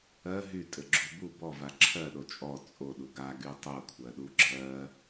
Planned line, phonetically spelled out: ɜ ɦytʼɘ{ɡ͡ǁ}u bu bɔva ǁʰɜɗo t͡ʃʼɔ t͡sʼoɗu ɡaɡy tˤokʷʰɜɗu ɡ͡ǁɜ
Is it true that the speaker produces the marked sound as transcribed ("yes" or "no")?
yes